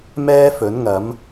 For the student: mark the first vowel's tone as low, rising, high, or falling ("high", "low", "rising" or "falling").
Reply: high